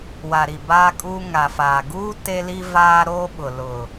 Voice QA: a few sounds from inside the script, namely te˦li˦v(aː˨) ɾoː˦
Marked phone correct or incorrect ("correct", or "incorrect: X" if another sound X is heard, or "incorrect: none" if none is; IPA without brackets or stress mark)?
incorrect: aː˦